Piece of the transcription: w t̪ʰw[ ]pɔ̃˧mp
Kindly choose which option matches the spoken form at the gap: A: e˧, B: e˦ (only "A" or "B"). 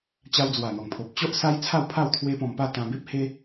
B